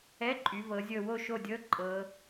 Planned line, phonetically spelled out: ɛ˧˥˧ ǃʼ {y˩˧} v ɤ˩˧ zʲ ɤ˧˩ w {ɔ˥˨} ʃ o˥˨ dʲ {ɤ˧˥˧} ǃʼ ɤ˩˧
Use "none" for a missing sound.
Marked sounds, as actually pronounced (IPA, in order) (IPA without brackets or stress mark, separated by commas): y˩˧, o˥˨, ɤ˧˥˧